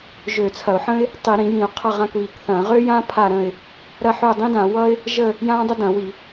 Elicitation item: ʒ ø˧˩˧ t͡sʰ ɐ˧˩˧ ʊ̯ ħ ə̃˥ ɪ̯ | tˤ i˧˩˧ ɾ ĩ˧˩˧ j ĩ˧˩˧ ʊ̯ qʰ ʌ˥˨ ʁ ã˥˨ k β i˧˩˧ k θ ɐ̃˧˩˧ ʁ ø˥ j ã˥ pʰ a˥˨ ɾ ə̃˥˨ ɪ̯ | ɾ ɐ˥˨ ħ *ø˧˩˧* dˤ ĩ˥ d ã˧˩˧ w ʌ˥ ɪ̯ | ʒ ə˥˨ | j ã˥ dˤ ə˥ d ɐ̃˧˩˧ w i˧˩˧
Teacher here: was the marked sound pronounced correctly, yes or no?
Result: no